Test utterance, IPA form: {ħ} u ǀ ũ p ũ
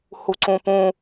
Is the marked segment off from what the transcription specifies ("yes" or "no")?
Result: yes